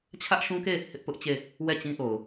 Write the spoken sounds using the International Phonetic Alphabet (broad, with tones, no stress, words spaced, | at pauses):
t͡ɕʰä˦ʔʃũ˦ke˦˨ | hɪ˦ʔpʊ˦ʔt͡ɕe˦˨ | wɛ˦˨ t͡ɕĩ˦ʔo˨ʊ̯